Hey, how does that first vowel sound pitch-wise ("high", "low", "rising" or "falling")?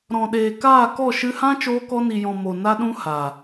low